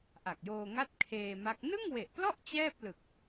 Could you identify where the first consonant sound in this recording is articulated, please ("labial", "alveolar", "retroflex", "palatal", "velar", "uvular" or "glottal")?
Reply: glottal